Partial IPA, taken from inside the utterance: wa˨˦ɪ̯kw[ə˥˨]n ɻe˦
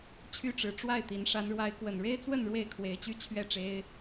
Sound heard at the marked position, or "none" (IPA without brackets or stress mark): ə˨˩